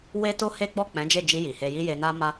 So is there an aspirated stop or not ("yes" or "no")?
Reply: no